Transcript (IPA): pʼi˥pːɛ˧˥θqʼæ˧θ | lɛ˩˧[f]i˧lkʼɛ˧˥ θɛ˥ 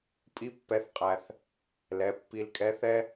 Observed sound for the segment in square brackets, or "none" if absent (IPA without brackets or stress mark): pː